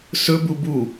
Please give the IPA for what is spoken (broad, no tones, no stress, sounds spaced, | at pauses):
s ɵ b u b u